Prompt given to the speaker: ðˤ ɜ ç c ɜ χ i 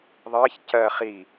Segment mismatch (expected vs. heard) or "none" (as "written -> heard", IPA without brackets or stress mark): none